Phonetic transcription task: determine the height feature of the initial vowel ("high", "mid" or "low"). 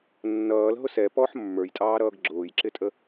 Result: mid